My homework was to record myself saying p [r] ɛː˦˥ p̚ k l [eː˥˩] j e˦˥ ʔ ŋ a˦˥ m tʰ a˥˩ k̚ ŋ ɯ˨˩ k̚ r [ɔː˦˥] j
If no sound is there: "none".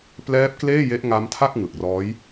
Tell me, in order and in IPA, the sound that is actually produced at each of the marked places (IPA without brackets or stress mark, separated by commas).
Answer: l, eː˥˩, ɔː˦˥